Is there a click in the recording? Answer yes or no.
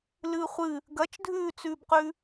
no